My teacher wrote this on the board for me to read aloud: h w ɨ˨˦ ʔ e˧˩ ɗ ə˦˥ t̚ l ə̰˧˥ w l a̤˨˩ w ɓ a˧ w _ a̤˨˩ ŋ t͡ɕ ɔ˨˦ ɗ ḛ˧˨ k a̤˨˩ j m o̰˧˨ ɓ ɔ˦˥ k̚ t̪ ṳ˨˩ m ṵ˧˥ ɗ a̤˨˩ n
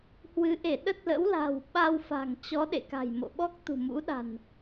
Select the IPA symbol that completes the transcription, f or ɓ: f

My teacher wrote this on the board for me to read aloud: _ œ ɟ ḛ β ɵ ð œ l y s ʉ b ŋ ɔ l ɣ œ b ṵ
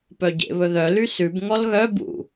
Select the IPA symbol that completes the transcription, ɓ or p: p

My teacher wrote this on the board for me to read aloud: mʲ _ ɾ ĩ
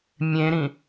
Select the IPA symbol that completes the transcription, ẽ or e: ẽ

